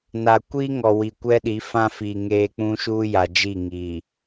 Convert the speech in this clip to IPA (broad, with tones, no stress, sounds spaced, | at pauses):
n a˨ kʷ iː˦ ŋ ɔ˨ w i˨ kʷ ɛ˦ ɗ i˨˦ f ã˦ f i˨ ŋ eː˦ k͡p ũ˦ ʃ uː˦ j a˨ d͡ʒ i˦˨ ŋ iː˨